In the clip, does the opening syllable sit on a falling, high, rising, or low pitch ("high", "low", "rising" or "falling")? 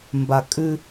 low